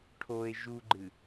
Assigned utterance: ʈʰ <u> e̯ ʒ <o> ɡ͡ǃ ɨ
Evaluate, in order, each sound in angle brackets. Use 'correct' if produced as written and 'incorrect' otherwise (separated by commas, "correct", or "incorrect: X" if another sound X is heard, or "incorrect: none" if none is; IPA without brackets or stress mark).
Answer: incorrect: o, incorrect: u